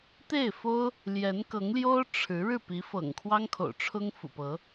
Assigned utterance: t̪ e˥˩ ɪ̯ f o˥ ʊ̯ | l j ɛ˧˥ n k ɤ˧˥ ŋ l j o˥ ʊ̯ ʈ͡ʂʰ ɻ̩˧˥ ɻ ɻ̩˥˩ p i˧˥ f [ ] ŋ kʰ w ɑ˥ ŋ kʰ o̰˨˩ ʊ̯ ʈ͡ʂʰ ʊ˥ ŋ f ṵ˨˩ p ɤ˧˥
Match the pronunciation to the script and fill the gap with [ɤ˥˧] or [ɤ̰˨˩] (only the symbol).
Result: ɤ̰˨˩